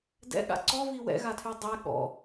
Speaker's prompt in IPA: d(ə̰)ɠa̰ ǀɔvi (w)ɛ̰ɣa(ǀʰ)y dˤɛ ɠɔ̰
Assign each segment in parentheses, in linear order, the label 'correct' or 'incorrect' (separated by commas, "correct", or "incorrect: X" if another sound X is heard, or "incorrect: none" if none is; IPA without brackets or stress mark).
incorrect: ɛ̰, correct, incorrect: tʰ